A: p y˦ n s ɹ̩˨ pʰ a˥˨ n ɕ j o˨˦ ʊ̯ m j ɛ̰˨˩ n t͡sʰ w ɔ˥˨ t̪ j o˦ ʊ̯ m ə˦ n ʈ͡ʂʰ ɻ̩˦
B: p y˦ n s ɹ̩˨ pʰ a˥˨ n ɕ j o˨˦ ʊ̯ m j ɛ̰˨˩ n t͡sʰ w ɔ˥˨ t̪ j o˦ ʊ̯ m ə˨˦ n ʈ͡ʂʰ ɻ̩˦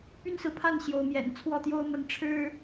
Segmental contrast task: A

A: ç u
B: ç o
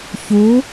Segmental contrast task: A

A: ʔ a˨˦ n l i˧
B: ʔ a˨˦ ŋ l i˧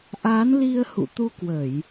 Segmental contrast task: A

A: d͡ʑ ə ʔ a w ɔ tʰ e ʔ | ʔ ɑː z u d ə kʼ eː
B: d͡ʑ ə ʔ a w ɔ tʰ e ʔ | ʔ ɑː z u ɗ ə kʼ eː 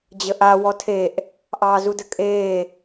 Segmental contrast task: A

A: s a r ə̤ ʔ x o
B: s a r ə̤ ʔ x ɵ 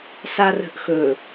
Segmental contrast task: B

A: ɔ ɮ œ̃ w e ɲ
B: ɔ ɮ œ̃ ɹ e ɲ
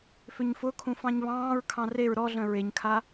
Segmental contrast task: B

